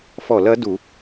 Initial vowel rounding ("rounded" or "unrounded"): rounded